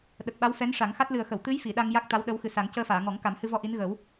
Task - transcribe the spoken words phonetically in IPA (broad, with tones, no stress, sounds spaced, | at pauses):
ɗ ə˨˩ k̚ ɓ a˧˥ w f ɛ˧˥ n ʂ a˨˩˦ ŋ x a˦˥ t̚ l ɨ˨˩ ə̯ x ə˨˩˨ w t̪ ɨ˧˥ j f i˨˩˨ ɗ a˧ ŋ j a˦˥ k̚ t̪ a˧˥ w ɗ ə˧˥ w x ɨ˨˩ s a˨˩˦ ŋ c əː˧ f aː˨˩˨ ŋ ɔ˨˩˦ ŋ k a˨˩˦ m h ɨ˧ v ɔ˧ ʔ i˧˥ n ɣ əː˨˩˦ w